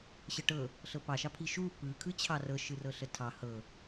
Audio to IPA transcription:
ɕəʈɤ | ɬɤpɑʃɑpʰi ʃu pɯkʰɯ t͡ɕʰɑrɤʃɯ rɤɬətʰɑ hɤ

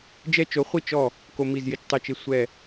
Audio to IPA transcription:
d͡ʒɛ˦t͡ʃo˨˥χʷi˥˩ t͡ʃɔ˥˩ | ko˦mi˥˩zjɪ˥˩t͡ʃ tˤɪ˥˩t͡ʃe˦sʷɛ˥˩

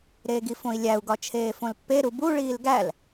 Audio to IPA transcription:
ɾeːɡifõi̯lʲæu̯ ɡɒt͡ʃʰeːfõlpːe ɾubu ɭiːlɡæl

